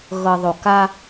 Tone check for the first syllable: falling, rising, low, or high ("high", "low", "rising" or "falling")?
low